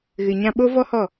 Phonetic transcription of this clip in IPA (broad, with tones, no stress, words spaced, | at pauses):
ɣɨ˨ɲã˧ ɓo˦ vɔ˦hɔ˦˨